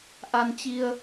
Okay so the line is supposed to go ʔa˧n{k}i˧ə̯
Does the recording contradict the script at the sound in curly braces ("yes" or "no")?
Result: yes